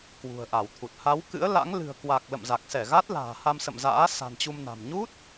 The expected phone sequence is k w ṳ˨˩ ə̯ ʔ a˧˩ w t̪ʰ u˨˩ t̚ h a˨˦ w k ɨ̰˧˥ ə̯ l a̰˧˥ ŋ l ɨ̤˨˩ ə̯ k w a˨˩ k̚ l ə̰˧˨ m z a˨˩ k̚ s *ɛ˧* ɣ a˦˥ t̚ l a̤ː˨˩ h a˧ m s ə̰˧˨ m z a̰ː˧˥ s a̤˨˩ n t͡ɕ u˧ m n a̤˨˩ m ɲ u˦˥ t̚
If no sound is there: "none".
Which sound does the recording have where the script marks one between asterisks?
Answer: ɛ˧˩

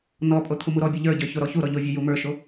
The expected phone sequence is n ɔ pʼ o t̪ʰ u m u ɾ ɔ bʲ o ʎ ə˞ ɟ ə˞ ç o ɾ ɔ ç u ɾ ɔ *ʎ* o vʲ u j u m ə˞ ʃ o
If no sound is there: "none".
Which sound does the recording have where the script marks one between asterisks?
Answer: ʎ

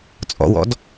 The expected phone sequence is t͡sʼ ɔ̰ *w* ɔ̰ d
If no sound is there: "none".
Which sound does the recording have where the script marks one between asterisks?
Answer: w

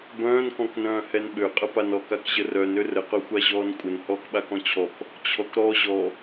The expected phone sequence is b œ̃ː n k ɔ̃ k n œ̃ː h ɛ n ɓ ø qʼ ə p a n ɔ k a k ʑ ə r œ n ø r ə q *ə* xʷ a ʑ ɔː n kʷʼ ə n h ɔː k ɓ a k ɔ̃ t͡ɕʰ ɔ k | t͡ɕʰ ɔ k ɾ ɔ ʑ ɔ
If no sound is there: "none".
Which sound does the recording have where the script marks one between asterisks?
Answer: œ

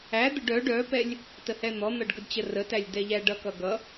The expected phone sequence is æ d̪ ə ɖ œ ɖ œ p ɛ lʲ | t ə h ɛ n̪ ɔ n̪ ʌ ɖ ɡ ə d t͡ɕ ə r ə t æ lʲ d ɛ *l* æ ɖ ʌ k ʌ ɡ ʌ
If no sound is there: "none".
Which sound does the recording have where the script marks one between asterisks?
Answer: ʎ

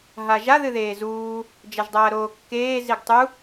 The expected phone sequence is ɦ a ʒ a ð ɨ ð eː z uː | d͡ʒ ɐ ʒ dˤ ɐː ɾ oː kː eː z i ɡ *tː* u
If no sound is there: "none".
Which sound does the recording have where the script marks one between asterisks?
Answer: tˤ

